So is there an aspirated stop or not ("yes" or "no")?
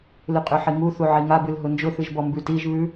no